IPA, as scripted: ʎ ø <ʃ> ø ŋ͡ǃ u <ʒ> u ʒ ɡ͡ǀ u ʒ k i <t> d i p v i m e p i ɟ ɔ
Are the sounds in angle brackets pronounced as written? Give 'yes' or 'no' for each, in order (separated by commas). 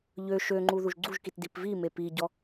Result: yes, no, yes